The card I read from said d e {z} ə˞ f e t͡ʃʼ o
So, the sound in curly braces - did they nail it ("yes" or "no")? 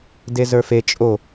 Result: yes